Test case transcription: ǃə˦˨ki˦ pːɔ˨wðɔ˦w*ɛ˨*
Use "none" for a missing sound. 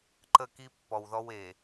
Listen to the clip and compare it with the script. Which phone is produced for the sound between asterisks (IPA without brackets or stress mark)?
e˨